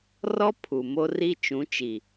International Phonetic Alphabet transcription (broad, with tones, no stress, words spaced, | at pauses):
rɔ˦ pʰu˨ mo˦ri˦ t͡ʃũ˨˦t͡ʃi˨